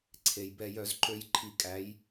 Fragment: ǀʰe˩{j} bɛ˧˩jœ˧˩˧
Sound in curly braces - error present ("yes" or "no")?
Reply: no